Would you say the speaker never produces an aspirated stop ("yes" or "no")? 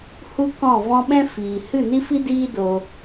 yes